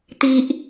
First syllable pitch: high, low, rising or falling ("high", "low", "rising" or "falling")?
high